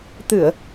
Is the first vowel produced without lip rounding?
yes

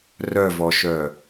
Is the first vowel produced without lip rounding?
no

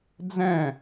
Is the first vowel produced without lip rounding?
yes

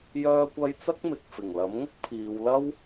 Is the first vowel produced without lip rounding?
no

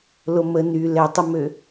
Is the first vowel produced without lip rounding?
no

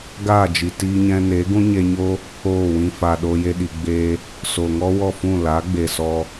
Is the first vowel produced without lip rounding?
yes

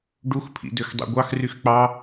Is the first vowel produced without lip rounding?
no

